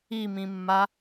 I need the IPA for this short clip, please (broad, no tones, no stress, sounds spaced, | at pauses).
i m ĩ mː a